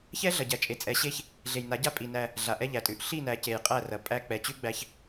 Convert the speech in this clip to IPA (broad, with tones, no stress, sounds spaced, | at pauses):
ç ɛ˦ ɮ ɐ˨ ɟ æ˨ t͡ʃʼ e˨ t͡sʼ ɛ˨ ɕ e˦ ç | ɮ e˨ j n a˨˦ ɟ a˦ pʼ i˨ n æ˦ | ɮ a˨ ʔ ɛ˦ ʎ æ˨ tʼ ʉ˨ ʔ ɬ i˦˨ n æ˨ c e˨ j qʼ æ˦˨ r ɐ˨ pʼ æ˦ k͡p ɛ˨ t͡ɕ ʉ˦ ɡ͡b æ˦ ç